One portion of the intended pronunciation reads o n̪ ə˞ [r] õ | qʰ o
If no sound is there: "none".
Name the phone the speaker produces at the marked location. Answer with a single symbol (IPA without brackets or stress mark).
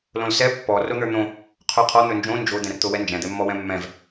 n̪